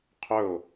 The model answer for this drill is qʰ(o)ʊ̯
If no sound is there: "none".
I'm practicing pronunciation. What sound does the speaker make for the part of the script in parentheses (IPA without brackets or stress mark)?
ɵ